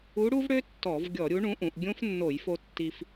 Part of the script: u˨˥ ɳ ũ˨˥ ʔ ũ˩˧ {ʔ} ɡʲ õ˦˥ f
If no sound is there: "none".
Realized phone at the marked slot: ʔ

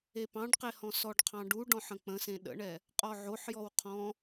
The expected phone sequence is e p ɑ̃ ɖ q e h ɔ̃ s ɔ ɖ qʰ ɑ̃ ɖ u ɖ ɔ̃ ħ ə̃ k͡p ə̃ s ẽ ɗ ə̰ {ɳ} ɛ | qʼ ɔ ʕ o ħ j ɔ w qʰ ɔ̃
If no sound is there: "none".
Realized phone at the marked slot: ɳ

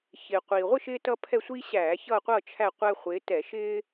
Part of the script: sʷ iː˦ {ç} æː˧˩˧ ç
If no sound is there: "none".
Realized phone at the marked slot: ɕ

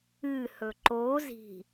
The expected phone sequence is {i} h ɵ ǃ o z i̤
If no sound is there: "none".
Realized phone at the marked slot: ɨ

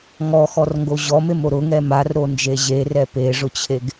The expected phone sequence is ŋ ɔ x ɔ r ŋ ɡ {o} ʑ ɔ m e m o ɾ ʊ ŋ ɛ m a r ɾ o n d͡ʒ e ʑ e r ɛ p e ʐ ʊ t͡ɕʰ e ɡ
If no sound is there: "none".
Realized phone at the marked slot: o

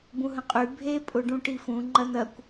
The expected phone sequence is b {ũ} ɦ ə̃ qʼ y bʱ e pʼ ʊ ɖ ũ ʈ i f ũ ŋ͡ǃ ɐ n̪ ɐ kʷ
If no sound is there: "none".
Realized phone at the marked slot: ũ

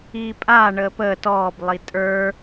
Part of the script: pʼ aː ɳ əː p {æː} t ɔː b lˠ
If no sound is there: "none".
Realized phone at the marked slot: əː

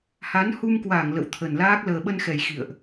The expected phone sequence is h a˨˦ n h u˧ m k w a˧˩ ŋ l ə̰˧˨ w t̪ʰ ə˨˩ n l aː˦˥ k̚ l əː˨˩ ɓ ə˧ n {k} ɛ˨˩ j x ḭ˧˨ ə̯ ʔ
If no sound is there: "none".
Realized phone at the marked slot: x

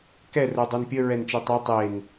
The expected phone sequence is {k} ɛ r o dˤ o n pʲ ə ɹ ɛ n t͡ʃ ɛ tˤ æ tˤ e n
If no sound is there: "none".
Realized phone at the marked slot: k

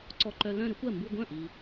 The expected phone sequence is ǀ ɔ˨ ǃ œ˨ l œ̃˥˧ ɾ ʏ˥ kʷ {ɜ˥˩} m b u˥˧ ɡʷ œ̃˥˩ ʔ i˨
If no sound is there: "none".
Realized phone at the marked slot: ɜ˥˩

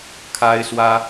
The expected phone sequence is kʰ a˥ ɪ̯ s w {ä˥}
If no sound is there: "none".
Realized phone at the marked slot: ä˥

